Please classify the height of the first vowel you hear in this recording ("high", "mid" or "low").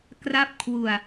low